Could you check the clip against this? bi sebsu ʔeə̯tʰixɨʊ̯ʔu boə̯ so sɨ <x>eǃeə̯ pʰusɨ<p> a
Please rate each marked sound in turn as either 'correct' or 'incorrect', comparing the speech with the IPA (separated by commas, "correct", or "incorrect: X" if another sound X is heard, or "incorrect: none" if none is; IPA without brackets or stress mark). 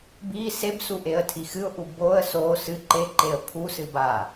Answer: incorrect: ǃ, incorrect: b